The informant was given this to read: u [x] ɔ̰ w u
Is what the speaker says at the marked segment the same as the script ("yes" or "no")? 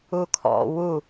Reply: no